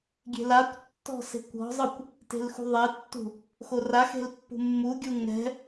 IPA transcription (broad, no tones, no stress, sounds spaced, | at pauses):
ɡʲ e̤ l a kʷ tː ɔ̤ s e̤ kʷ ɔ̤ zˤ ɯ kʷ | t e̤ l x ṳ ðˤ e tː ṳ | x o r a x e̤ l pː ṳ mː u ɡʲ u ŋ ɛ̤